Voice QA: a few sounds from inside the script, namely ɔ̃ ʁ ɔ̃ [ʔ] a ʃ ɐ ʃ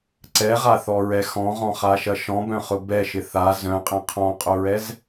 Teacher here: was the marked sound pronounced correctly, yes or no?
no